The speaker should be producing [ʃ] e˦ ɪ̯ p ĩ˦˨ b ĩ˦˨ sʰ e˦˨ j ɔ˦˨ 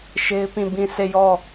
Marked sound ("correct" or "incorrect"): correct